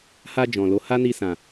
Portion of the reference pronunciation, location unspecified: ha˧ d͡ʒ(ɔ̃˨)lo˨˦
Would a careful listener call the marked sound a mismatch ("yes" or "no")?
no